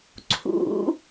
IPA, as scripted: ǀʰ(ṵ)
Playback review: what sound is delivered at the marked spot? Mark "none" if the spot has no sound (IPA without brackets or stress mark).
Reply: ṵ